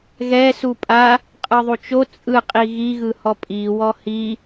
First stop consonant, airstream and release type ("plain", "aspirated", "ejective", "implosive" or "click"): ejective